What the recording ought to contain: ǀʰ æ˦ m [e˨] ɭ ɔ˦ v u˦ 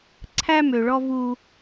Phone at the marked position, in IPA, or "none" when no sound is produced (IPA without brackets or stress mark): ø˨